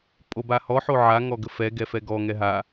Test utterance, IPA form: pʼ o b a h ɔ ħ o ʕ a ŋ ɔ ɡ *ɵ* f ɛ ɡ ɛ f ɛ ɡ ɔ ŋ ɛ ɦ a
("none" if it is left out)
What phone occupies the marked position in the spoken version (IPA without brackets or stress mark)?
ə